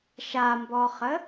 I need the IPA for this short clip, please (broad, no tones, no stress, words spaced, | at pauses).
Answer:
ʃambɔχə